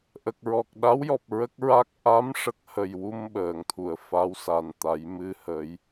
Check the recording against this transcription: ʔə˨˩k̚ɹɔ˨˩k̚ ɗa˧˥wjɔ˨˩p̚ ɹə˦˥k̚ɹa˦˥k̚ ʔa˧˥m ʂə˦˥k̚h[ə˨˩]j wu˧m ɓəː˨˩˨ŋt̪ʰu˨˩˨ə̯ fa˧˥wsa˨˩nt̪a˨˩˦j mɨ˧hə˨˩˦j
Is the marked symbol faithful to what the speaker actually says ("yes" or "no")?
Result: yes